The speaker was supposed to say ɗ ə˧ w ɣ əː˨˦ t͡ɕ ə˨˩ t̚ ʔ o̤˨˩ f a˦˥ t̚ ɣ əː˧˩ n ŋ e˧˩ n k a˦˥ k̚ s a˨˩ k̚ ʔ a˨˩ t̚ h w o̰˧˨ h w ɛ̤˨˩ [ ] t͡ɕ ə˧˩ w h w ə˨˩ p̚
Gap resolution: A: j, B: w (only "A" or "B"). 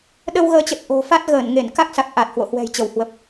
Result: A